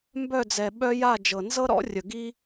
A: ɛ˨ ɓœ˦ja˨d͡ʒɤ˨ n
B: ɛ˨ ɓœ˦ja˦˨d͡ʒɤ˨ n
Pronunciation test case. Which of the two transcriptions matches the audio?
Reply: B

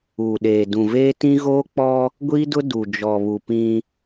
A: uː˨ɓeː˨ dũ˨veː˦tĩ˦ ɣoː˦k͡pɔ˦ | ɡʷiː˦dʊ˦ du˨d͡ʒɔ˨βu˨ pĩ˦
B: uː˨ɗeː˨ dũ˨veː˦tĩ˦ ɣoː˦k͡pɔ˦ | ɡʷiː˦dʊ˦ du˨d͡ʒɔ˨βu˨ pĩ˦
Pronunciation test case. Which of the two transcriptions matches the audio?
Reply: B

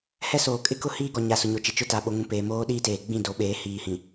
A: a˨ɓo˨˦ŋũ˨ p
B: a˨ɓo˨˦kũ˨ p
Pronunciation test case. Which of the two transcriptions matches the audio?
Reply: A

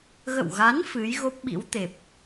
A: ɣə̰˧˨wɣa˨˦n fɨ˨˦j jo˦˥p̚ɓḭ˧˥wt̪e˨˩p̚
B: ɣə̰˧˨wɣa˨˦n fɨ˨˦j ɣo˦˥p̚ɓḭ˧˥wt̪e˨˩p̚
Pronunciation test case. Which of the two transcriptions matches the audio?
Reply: B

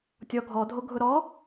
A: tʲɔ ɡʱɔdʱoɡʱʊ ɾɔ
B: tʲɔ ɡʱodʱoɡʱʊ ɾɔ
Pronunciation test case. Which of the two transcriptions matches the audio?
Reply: A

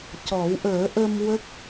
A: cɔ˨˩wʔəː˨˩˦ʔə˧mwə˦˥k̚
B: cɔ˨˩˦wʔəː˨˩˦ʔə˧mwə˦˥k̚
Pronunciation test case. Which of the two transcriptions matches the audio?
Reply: B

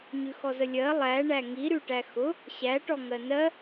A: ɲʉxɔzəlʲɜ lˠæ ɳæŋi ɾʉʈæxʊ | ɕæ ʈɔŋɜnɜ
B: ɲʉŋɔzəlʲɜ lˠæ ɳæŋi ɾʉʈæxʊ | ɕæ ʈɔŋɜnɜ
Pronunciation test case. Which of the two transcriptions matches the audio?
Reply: A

